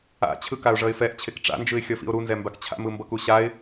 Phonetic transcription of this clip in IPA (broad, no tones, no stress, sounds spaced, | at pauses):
a̰ t͡ɕʰ ɯ k a ʊ̯ ʐ ʌ ɪ̯ f ɛ ʔ t͡ɕʰ e k ʈ͡ʂ a̰ n d͡ʒ ɯ ɪ̯ xʲ ʌ f ḭ ʊ̯ ɾ u n z ɛ m b a k t͡ɕʰ a̰ m ɯ m b ʌ k u ɕ a ɪ̯